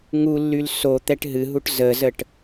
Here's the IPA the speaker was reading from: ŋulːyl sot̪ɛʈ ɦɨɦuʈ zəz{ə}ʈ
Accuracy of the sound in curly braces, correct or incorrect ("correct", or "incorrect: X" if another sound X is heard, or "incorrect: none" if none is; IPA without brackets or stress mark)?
correct